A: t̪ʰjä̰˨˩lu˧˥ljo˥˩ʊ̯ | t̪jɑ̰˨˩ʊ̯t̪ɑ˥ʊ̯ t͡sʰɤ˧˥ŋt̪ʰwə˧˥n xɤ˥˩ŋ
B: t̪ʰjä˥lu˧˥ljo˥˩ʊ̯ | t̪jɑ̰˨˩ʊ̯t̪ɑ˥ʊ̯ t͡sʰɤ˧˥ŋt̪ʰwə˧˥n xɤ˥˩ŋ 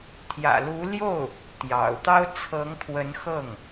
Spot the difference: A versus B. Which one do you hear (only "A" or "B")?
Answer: A